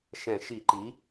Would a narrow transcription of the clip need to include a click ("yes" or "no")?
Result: yes